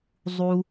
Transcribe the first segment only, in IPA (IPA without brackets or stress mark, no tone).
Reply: zˤ